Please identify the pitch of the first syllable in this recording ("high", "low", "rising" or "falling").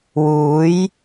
rising